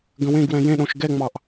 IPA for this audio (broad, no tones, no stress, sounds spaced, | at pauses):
ɡ ə̃ w ẽ ɡ w ɛ̃ j ẽ ɗ õ ʃ ɡ ɛ ŋ͡m ɑ ʔ